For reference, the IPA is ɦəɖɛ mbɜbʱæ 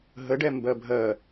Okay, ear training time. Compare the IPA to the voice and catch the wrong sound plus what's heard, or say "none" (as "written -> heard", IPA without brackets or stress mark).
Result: æ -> ɜ